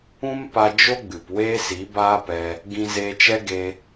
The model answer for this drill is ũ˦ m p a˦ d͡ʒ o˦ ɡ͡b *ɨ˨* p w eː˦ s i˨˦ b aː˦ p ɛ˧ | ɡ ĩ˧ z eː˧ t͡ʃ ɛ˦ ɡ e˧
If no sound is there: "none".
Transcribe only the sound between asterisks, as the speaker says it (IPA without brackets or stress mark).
ɨ˨